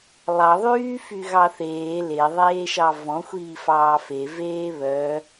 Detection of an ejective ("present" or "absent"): absent